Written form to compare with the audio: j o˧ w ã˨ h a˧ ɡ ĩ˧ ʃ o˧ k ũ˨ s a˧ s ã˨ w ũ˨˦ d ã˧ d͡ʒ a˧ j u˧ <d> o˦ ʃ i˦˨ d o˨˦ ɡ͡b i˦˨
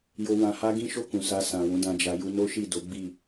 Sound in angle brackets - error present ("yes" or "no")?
yes